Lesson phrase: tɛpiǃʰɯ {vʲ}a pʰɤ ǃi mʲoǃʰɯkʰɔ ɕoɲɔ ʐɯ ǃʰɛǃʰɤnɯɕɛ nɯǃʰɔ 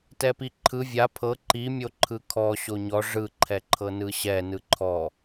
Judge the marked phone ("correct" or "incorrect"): correct